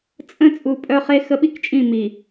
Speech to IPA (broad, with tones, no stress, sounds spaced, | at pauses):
t͡sʼ ə̃˦ t͡sʼ u˨ pʼ œ˦ χ e˦ x ə˦ ɓ i˦ k t͡ʃʼ ĩ˦˨ m i˨